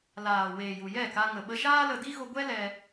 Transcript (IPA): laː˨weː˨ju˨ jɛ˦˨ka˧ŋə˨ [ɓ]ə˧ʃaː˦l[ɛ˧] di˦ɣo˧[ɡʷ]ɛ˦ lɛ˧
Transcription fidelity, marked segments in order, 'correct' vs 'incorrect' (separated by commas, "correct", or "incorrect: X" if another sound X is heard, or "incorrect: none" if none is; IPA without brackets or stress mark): correct, incorrect: ə˧, correct